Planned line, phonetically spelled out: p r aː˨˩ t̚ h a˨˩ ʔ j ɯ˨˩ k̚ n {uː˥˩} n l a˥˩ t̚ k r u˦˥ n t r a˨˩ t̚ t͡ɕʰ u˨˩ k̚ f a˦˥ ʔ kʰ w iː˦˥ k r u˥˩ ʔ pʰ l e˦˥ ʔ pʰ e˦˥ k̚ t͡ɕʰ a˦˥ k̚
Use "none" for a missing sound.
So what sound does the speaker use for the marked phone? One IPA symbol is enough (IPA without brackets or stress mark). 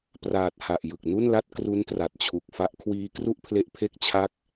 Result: u˥˩